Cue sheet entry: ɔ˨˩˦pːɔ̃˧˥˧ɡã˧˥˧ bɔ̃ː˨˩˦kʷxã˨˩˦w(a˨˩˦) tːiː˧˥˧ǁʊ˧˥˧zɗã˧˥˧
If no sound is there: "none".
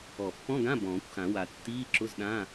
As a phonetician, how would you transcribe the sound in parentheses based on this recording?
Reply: a˨˩˦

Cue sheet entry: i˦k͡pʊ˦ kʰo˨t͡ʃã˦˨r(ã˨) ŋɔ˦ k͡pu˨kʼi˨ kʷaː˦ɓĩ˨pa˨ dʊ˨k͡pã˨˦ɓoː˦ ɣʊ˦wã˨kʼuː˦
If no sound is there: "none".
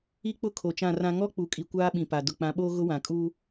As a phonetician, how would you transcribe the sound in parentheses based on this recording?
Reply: ã˦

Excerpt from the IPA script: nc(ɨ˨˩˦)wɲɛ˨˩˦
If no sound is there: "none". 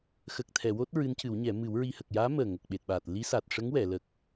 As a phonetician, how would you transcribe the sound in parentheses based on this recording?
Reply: ɨ˨˩˦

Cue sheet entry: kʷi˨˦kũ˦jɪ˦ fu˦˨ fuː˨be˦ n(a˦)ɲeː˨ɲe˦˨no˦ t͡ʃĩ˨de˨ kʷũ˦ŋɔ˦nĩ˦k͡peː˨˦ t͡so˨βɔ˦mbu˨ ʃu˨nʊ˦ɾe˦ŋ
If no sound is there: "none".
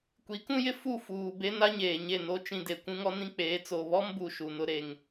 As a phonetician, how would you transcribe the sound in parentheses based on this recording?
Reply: a˦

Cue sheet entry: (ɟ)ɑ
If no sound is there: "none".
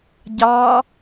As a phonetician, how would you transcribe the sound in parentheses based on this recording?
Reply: ɟ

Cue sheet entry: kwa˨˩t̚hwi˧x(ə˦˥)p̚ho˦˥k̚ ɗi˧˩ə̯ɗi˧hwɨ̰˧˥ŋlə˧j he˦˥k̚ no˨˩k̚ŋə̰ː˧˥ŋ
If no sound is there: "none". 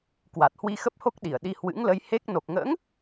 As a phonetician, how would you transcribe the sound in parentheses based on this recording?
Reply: ə˦˥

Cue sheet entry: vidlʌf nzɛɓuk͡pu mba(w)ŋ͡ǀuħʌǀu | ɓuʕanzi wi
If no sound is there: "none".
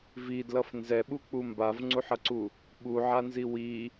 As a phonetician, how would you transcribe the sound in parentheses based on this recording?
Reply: v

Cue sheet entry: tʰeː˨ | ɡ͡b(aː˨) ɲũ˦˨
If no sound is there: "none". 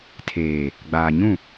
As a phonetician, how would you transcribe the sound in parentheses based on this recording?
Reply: aː˨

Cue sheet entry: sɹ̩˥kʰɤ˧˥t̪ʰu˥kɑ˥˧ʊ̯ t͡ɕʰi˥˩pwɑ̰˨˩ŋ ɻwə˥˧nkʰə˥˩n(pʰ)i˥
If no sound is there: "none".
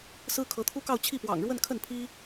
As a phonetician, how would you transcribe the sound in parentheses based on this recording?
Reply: pʰ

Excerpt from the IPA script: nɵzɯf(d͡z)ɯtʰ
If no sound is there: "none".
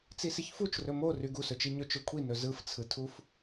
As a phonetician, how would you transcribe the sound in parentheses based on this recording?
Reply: t͡sʰ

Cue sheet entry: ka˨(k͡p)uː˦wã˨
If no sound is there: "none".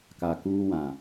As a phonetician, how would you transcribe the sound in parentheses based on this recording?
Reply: k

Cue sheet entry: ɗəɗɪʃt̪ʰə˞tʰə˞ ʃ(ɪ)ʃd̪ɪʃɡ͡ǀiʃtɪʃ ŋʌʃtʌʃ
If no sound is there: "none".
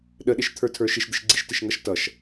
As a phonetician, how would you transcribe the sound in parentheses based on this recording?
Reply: ɪ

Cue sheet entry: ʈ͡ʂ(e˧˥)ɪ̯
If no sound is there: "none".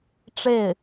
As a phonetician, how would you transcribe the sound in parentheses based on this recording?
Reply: e˥˩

